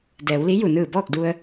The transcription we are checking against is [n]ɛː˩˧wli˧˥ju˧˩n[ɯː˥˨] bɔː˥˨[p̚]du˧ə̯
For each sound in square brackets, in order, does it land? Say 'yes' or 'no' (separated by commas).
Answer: no, no, no